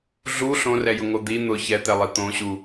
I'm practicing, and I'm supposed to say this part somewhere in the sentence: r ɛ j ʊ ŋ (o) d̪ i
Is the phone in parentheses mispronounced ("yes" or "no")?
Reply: no